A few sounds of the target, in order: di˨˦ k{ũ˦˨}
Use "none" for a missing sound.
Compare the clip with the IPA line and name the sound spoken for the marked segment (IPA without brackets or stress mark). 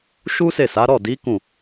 ũ˦˨